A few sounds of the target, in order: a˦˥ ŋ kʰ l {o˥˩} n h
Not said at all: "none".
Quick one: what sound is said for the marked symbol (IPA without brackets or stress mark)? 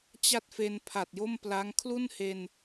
u˥˩